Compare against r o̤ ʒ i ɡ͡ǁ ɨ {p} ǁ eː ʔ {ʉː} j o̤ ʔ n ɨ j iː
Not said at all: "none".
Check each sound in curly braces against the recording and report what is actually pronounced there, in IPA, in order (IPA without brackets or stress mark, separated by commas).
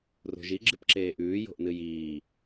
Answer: p, ʉː